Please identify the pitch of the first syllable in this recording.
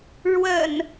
low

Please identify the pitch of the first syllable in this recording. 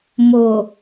low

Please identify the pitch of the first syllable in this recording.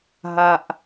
high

